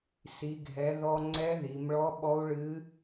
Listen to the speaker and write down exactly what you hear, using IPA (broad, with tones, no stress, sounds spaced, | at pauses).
s i˩˧ ɡʱ ɛ˩˧ ð ɔ˧ ŋ͡ǀ ɛ˧˥ ð i˩˧ m ɭ ɔ˧˥ ɓ ɔ˧˥ u̯ ɭ ɨ˧˥